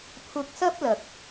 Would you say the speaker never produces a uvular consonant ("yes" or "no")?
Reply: yes